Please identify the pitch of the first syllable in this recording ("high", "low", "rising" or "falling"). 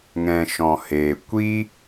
low